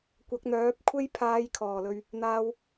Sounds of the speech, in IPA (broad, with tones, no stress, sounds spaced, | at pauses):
kʷ ɐ˨˥ k̚ n̪ œː˨˥ p̚ kʷʰ e˥ j pʰ aː˨˧ j kʰ ɔː˨˩ l ɵ˨ ɥ | n̪ aː˨ w